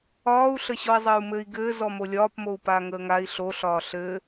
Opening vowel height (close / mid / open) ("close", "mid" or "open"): open